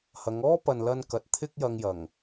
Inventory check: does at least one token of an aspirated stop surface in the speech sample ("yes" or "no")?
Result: yes